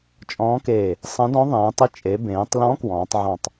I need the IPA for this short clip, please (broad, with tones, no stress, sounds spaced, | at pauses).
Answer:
t͡ʃʼ ɔ̃ː˧˥ k eː˧˩ | sˤ ɐ̃˧˥ d ɔ̃˧˥ ðˤ ẽː˩˧ tˤ i˧˥ t͡ʃʼ e˩˧ b ẽː˩˧ tˤ l ɔ̃˧˥ k w ɔ̃ː˩˧ tˤ ʕ ɔ̃˧˩ tˤ